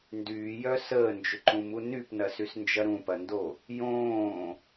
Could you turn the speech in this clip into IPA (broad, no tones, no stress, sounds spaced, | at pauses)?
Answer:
n d yː j œ s əː n d͡ʒ ʏ ǃ ũ m u n y p n ɐ s y s n d͡ʒ ɐ ɾ ũ p ɐ n d o | j õː